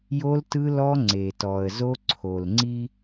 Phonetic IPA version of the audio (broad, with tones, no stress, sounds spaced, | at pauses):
j o˦ l t ɯ˦ l ɔ˦ ŋ͡ǀ e˨ t ɔ˨ ə̯ z o˦ ǀʰ o˨ l ŋ͡ǀ i˦